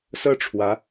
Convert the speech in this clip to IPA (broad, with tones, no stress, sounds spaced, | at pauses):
s ɤ˥˩ ʈ͡ʂʰ w ä˧˥